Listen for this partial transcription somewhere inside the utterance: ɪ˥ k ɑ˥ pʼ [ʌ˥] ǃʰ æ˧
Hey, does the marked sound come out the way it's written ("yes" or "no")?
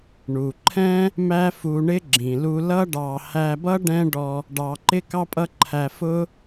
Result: yes